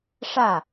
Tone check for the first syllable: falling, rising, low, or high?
falling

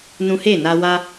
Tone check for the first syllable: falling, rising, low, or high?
high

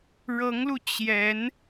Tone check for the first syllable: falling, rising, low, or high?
rising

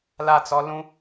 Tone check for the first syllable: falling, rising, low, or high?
falling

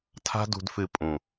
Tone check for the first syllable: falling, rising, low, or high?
high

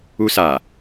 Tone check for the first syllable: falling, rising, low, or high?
high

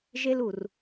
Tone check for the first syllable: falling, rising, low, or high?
high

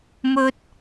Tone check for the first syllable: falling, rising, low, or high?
high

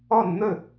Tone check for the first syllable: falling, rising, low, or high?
falling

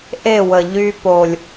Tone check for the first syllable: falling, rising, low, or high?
falling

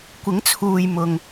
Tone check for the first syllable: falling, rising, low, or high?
rising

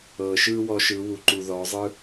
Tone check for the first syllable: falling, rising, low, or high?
low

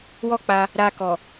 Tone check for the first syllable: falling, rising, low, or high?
high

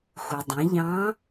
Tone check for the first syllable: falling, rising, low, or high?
low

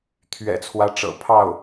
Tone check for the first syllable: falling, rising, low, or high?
low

